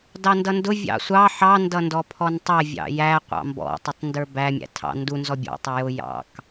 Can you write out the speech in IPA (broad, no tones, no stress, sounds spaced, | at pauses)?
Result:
d ɑ n d ʌ n d ʊ vʲ ɑ̰ sʷ ɑ ħ ɑ n d ʌ n d ɔ pʰ ɔ n tˤ ɛ vʲ ɑ̰ j æ qʷ ɑ̰ m b ɔ̰ tˤ ʊ tˤ n d ə˞ b æ mʲ æ̰ tʰ ɑ̰ n d u n z ɔ bʲ ɔ̰ tˤ u j ʊ j ɑ̰ k